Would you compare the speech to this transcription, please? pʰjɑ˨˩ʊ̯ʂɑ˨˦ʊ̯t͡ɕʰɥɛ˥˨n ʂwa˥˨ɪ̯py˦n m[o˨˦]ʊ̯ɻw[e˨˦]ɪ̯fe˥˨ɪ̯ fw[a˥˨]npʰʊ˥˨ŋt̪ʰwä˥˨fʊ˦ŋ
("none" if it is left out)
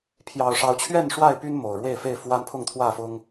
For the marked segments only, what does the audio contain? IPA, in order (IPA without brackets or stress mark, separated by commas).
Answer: o˨˩, e˥˨, a˦